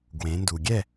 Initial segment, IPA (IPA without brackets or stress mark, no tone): ɡ